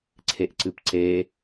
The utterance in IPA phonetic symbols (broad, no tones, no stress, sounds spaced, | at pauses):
ǀʰ e ʔ ǀ ɨ p ǀ e